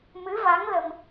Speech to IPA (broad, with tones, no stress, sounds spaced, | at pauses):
m ɨ˧˥ v a˧˥ ŋ l ə˧ m